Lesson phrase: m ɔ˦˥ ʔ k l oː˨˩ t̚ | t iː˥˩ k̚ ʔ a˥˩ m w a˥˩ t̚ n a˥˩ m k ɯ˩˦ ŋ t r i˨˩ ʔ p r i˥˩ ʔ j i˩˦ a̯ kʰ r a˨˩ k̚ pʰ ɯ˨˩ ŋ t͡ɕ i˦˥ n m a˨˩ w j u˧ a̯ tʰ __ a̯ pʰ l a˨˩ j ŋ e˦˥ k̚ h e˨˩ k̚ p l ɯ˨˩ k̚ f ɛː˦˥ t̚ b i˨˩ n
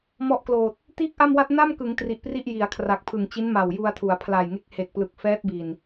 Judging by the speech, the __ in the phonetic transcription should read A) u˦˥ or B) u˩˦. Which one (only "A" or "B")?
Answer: B